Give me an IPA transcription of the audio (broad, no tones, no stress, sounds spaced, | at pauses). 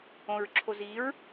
õ ɹ ǁʰ o z i ɹ